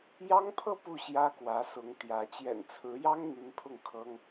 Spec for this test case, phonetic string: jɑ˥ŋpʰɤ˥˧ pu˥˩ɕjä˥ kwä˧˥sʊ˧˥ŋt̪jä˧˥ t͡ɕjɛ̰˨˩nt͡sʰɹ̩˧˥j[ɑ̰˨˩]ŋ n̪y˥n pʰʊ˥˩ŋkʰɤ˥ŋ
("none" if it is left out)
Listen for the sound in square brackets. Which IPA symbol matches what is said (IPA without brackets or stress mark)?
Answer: ɑ˥